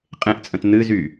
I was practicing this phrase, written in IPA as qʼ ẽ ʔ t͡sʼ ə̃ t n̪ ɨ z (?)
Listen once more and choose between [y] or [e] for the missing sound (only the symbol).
y